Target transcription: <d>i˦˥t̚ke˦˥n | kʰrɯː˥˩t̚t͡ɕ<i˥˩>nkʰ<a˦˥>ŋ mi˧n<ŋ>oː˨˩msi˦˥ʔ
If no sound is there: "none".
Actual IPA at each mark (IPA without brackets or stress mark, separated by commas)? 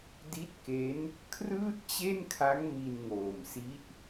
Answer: d, e˥˩, a˦˥, ŋ